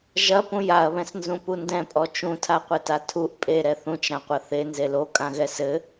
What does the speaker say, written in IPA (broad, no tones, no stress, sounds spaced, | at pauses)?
ʒ ɐ p ũ j a ɐ̯ β ɛ̃ s n z ũ p u n d ɛ̃ pʼ ɔ t͡ʃ ũ tʰ a qʷ ɘ t a tʰ u ʔ pʼ e ɾ ɛ θ ũ t͡ʃ ɾ ã qʷ ɐ θ e n z e l o kʼ ã ɣ ɛ s ɘ